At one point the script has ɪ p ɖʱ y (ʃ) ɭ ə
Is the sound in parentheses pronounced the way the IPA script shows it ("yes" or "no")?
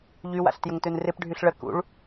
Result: no